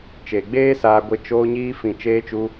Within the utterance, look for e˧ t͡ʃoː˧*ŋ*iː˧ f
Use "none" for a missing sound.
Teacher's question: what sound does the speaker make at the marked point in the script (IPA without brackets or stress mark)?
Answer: ɲ